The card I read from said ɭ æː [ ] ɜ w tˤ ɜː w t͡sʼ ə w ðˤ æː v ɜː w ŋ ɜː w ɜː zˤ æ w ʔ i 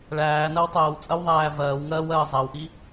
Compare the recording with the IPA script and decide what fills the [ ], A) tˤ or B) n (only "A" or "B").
B